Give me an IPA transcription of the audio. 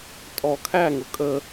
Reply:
tʼ ɔ kʰ æ ŋ ʊ kʼ ə

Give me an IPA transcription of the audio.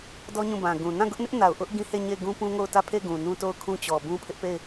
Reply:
d ɔ˦ ɲ ũ˦˨ b ã˨ ɡ ũ˨ n ã˦˨ ɡ ʊ˦ ʔ n ɪ˦ ʔ n a˨ ʊ̯ ʔ ʊ˦ ʔ ɡ ĩ˦ h e˦˨ ɲ e˦˨ ɪ̯ ɡ ũ˦ p ũ˦ ŋ o˦˨ ʊ̯ t ä˦˨ pʰ e˦˨ ɡ ũ˨ n ũ˦ t o˦˨ ʊ̯ kʰ ũ˦ t͡ɕ ɔ˨ b ũ˦ pʰ ɪ˦ ʔ p e˦˨ ɪ̯

